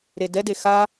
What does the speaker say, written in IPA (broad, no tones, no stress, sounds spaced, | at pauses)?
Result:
ɾ e d ɛ d e x a